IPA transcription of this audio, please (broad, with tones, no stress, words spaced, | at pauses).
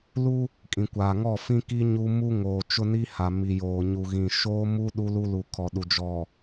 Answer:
lu˦ | kʼĩ˨kʷaː˨ ŋɔ˦˨fĩ˦ki˦ ɲu˦ mu˦ŋoː˨ t͡ʃʊ˦ni˦ha˨ mi˨joː˨ɲu˨ɣĩ˨ ʃoː˦mu˦ ɗu˦lu˦lu˨ kʰɔ˨ɗu˨ d͡ʒɔ˨